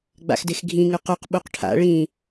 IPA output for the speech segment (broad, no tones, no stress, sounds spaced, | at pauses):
ɡ͡b a̰ x d e x ɡʱ ĩ ŋ ʉ q ʉ q ɓ u q ʈʰ a̰ ɭ ĩ